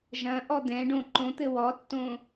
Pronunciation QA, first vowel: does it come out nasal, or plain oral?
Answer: nasal